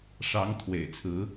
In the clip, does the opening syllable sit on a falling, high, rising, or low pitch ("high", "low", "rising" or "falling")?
rising